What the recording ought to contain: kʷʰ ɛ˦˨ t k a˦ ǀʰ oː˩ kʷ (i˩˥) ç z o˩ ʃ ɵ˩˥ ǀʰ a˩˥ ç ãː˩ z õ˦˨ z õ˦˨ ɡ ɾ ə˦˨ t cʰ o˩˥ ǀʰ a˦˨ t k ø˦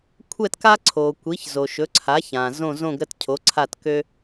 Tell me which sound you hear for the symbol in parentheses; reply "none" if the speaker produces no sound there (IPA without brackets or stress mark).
i˩˥